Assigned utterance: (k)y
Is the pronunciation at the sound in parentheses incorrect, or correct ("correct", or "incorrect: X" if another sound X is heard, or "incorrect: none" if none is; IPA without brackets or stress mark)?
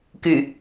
correct